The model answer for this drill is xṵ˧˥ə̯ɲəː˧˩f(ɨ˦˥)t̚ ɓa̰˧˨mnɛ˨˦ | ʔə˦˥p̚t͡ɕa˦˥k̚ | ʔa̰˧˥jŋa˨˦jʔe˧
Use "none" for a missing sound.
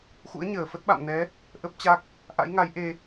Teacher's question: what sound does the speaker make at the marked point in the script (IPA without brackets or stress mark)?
ə˦˥